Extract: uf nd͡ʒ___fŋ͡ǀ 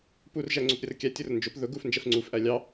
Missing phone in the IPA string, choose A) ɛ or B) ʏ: A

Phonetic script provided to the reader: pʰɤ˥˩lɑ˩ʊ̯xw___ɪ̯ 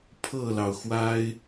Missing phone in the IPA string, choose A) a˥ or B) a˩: A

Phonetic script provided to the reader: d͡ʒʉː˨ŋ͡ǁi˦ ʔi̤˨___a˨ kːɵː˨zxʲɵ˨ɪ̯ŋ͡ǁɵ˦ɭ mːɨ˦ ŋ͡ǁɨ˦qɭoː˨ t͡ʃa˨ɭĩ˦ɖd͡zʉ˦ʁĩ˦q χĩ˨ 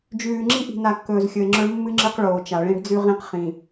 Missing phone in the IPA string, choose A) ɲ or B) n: B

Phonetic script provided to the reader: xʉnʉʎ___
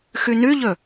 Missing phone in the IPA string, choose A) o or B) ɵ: B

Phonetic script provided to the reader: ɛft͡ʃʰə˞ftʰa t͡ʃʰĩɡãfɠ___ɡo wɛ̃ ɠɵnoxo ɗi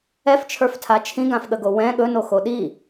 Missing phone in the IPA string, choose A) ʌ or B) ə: B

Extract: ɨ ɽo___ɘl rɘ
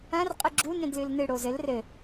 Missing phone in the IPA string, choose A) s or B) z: B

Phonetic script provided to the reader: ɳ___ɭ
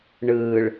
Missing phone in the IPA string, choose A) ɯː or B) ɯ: A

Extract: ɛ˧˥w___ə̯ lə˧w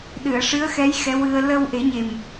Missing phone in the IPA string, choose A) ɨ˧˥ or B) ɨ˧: B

